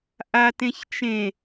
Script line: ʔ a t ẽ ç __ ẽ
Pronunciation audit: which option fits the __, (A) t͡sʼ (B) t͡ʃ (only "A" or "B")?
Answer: B